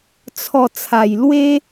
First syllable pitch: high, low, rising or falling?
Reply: low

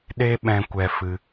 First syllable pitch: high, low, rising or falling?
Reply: high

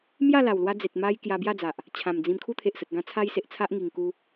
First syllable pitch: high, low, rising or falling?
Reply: falling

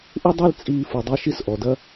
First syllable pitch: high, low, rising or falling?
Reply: high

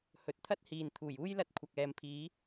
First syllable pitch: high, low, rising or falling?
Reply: low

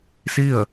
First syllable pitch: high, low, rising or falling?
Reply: falling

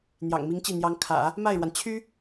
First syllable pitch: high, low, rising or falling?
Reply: low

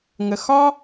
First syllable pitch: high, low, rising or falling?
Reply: low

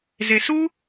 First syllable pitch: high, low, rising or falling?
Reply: low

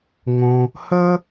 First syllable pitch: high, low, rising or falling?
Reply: high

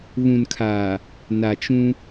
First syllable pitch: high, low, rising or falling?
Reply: low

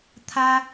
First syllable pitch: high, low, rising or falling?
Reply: high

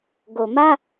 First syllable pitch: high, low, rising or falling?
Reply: low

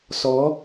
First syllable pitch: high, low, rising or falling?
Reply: rising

